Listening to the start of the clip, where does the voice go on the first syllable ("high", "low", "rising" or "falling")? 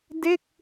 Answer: falling